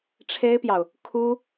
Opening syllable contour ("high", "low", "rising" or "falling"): high